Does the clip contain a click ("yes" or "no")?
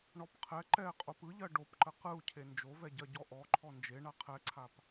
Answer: yes